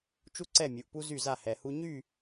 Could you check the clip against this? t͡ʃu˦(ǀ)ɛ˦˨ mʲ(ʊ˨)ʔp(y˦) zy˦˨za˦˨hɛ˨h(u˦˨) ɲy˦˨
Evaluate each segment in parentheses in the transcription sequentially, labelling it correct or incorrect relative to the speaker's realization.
correct, incorrect: u˨, incorrect: u˦, incorrect: u˦

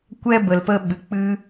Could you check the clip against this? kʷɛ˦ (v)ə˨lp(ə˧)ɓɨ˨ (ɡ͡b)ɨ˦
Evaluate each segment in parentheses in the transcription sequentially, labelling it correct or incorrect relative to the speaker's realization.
incorrect: b, correct, incorrect: k͡p

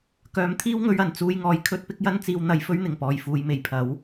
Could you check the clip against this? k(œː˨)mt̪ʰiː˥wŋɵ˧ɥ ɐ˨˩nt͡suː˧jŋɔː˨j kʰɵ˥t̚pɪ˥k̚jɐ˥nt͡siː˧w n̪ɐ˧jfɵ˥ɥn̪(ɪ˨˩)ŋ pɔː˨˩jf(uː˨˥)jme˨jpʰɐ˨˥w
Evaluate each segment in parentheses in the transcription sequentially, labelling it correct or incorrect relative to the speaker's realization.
incorrect: œː˨˧, correct, incorrect: uː˨

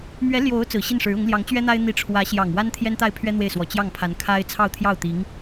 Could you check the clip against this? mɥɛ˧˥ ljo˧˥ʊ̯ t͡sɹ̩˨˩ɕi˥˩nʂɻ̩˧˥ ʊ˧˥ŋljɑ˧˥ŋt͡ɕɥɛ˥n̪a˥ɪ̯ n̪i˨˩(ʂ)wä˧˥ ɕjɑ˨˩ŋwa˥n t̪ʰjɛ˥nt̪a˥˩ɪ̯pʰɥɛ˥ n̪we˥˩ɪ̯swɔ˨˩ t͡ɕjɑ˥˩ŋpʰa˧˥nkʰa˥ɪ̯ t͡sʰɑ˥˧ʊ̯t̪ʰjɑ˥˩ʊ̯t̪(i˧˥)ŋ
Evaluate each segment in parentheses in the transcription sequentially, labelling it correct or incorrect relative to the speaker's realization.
incorrect: ʈ͡ʂʰ, correct

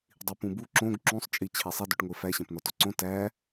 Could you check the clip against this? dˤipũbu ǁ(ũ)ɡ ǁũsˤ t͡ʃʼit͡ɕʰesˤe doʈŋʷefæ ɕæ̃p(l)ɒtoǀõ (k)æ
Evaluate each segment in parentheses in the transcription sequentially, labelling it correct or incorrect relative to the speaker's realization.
incorrect: õ, incorrect: n, incorrect: t

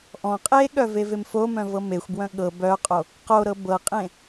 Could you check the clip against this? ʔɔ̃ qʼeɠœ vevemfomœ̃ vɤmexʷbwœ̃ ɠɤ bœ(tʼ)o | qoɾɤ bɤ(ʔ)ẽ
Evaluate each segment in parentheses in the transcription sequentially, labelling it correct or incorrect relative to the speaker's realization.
incorrect: qʼ, incorrect: qʼ

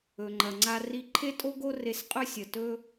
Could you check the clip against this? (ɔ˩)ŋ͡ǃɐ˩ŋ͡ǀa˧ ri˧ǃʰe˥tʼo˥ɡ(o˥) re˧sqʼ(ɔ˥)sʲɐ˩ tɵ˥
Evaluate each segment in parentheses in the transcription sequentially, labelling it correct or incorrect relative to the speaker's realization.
incorrect: ɵ˩, correct, incorrect: ɵ˥

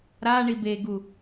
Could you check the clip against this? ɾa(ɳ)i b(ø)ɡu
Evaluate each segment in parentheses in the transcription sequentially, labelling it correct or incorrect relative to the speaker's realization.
correct, incorrect: e

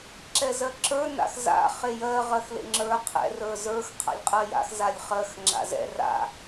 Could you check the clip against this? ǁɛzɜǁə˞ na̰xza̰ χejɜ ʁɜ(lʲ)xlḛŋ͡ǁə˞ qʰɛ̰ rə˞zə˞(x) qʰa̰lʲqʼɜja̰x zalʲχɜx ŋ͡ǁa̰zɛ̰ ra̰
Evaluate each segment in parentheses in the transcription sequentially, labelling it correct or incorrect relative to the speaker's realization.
incorrect: none, correct

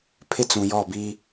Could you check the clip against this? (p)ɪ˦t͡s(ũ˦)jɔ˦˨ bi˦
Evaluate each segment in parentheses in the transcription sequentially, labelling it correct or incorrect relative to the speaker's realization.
incorrect: pʰ, incorrect: ũ˨

